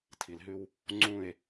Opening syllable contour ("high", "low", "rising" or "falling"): low